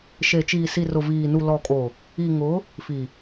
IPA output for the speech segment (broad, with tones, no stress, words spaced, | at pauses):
ʃe˨t͡ʃiː˨ si˨rʊ˨ viː˨nu˨ lɔ˨kʼo˨ | i˨ŋʊ˨˦ | fi˨